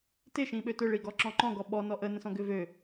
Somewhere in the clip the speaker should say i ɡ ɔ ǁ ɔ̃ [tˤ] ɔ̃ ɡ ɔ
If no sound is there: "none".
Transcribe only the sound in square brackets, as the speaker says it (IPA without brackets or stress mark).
ǃ